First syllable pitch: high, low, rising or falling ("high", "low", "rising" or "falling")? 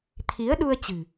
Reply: rising